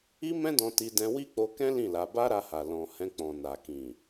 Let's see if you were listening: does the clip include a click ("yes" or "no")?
no